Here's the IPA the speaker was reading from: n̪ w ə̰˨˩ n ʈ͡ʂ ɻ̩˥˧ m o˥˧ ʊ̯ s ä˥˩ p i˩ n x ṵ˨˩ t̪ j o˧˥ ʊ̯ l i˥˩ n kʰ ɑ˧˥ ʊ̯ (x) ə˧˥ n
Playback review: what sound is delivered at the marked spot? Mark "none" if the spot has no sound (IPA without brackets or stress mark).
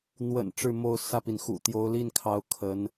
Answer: kʰ